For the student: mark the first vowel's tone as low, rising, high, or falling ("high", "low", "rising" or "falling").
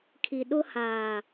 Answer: low